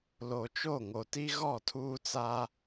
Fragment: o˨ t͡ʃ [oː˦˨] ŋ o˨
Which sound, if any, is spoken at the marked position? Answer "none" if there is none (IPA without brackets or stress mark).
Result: o˦˨